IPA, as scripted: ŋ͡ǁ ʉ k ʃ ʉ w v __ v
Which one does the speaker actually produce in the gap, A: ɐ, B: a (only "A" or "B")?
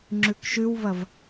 A